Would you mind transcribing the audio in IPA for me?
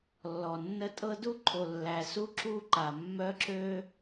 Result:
lː ɔ˨ nː ə˦ tʼ ɤ˦ d u˦ ǃʰ o˨ lː æ˨ s u˦ ǁ u˦ ǃ a˨ mː œ˦ ǁ ø˦

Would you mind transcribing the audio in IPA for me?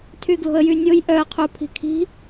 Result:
tʰ y ɡ l o̤ ə̯ j y nʲ o j ʔ œ ə̯ qʰ u pʰ i̤ kʰ i̤

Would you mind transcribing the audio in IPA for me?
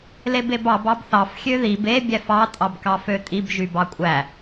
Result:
l e b e b ɑ b ɑ b θ ɑ f xʲ ø ð i b e bʲ æ f ɑ tʼ ɑ b k ɑ f ø tʼ i b ʒ y b ɑ kʷʼ æ

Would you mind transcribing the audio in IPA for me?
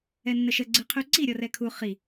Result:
ɛ nː ə ʃ ə ɡ͡ǀ ɨ qʰ ʉ ǀ i ɾʲ ɔ r ɛ kʰ u χ i

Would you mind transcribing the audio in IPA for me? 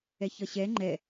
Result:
ɛ ç ʌ ɕ ɛ ŋ͡ǃ ɛ

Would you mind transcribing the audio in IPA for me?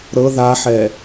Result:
ɾ ɤ ð a ħ ɛ

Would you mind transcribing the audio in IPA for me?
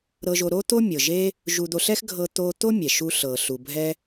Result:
ɾ ɤ˧ ʒ o˧ ɾ o˥ t̪ o˥ mʲ ɤ˩ ʒ e˧ | ʒ u˧ d̪ o˧ ɬ ɛ˥ x ɡʱ ɤ˧ t̪ o˧ t̪ o˥ mʲ ɛ˩ ʃ u˧ ɬ ɤ˩ ɬ u˩ bʱ ɛ˧

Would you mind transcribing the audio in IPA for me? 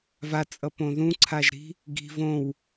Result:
v a t͡sʼ ʌ p õ ð ũ ǀʰ a ʒ ɾ i̤ | ɡ i̤ v õ w

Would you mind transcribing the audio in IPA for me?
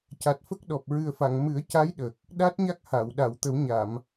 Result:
c a˨˩ t̚ f ə˦˥ k̚ ɗ ɔ˨˩ p̚ ɹ ɨ˨˩ ə̯ f a˨˩˨ ŋ m ɨ˨˩˦ ə̯ c a˧˥ j ɗ ə˨˩ k̚ | ɗ a˦˥ t̚ ɲ a˦˥ k̚ h a˨˩˨ w ɗ a˨˩˨ w t̪ ə˨˩˦ w ɲ a˨˩˨ m

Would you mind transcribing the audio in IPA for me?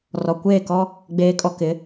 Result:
r ɔ˨ kʷ eː˦˨ k ɔ˦ | ɡ͡b eː˨ kʼ ɔ˨ k ɪ˨˦

